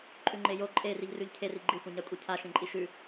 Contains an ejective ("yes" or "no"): yes